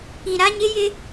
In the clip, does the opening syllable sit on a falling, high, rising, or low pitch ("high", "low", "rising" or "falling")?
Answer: low